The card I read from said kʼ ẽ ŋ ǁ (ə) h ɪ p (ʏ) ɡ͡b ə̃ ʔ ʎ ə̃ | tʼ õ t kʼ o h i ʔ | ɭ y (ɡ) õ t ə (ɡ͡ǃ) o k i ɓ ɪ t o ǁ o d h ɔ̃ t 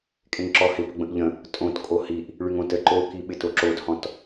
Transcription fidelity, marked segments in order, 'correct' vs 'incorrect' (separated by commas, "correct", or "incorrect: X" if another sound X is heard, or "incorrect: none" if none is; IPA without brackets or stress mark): incorrect: ɔ, incorrect: ə, incorrect: ŋ, incorrect: ǃ